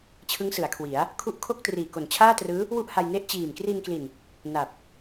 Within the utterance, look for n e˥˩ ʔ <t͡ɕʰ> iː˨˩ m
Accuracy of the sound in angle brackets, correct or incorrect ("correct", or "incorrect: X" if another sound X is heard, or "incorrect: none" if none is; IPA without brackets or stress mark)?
incorrect: t͡ɕ